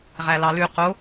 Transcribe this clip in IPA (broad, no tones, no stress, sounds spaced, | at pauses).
ʁ æ l ɑ l ʉ q o